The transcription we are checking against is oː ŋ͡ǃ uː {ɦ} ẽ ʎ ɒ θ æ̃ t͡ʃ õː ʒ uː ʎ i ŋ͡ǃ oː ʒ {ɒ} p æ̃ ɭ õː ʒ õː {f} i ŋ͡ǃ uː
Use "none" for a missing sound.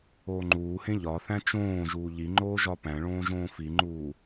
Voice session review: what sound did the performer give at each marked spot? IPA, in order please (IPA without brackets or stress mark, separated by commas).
h, ɒ, f